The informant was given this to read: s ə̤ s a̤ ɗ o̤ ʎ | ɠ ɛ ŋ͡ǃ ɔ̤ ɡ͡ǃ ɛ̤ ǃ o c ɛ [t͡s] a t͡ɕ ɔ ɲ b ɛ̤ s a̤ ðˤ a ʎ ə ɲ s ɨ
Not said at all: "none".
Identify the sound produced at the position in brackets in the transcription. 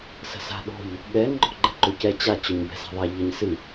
t͡ɕ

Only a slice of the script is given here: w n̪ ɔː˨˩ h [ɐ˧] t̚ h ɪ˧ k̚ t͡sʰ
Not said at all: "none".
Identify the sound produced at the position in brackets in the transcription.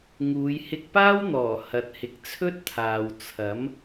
ɐ˧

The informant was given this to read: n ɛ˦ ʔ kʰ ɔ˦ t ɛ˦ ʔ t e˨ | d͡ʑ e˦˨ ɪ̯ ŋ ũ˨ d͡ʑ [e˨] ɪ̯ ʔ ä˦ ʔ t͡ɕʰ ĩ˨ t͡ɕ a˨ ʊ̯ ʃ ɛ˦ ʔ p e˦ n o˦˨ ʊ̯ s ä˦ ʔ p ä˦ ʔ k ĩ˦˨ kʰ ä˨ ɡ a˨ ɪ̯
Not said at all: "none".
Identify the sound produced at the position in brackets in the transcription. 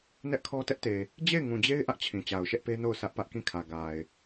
e˦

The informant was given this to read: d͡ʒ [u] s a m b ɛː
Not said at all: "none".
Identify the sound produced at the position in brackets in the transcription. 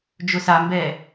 ʊ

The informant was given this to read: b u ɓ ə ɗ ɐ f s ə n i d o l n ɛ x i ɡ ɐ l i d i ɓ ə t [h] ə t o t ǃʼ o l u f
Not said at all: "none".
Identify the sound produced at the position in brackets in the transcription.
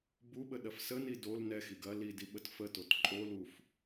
f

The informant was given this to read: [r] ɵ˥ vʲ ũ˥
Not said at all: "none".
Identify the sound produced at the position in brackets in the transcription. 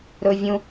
ɾ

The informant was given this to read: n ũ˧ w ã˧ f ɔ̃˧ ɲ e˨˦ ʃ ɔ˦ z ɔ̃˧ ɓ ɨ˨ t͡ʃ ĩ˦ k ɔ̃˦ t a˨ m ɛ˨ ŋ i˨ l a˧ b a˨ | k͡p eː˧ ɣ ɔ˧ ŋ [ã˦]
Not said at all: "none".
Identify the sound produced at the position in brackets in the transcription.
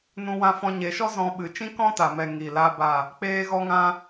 ã˧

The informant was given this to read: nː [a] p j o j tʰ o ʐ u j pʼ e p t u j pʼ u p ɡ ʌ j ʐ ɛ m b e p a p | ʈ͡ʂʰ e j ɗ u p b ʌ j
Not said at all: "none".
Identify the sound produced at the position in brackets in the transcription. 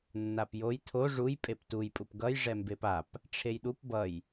a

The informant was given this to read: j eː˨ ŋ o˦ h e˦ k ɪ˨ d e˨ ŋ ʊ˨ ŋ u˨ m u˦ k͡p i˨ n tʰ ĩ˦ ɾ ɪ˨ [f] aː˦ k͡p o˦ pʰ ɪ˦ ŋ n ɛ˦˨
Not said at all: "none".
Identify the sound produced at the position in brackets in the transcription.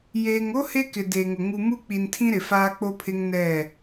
f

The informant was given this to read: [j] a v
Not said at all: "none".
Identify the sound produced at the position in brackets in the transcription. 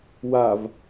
w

